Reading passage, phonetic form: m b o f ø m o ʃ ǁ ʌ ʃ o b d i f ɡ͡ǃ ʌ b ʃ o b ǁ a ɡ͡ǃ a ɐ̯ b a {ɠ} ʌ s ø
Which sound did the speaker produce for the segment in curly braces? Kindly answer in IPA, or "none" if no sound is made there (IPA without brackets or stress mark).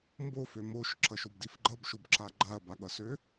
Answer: ɠ